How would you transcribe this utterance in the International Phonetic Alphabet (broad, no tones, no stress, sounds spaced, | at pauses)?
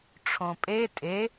ʈ͡ʂʰ õ pʼ e tʼ e